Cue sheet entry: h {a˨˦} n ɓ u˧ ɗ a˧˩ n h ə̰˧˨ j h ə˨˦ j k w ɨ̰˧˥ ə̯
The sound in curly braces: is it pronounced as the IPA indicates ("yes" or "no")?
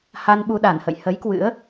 no